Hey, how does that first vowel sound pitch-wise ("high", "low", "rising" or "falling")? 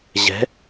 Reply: rising